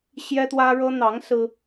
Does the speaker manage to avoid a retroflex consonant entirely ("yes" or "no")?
no